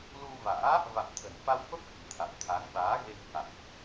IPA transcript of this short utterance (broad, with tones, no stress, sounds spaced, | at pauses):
l u˧ v a̰ː˧˥ | v a̰˧˨ m t̪ʰ ə̤˨˩ n f a˧ w f ə˦˥ p̚ k i̤˨˩ t̪ʰ a̰˧˨ w t̪ʰ a˨˦ ŋ ɓ aː˨˦ ɣ e˧ ŋ h a̰˧˨ m ʔ